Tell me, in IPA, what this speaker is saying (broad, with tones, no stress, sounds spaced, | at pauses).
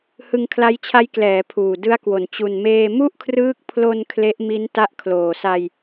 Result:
h ɯ˧ ŋ kʰ l a˦˥ j t͡ɕʰ a˦˥ j k l ɛː˩˦ pʰ uː˨˩ d ɯ˦˥ a̯ k w o˨˩ n t͡ɕ u˨˩ n m eː˧ m u˥˩ ʔ kʰ r ɯː˦˥ k̚ pʰ l o˧ n kʰ l e˦˥ ʔ m i˦˥ n t a˦˥ ʔ kʰ l oː˨˩ s a˧ j